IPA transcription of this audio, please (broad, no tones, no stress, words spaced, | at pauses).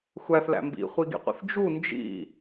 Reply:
xʷæθlæ̰ mbḭχʷiɡḭqʷḭθ d͡ʒu nd͡ʒḭ